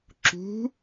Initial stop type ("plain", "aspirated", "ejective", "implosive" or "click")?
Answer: click